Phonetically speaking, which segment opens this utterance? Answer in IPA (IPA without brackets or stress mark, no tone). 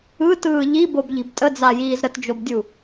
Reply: ɯ